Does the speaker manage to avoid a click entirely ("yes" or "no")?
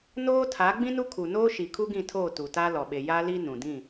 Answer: yes